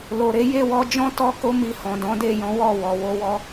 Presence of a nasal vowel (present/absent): present